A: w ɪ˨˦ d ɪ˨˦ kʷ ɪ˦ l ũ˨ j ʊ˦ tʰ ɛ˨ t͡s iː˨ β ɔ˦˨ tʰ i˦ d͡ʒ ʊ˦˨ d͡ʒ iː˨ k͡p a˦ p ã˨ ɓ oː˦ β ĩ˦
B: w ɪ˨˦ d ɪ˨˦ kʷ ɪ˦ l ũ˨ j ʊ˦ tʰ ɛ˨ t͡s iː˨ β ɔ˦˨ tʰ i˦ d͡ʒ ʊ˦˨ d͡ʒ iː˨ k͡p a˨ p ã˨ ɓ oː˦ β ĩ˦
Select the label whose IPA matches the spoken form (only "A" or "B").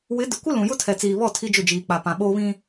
B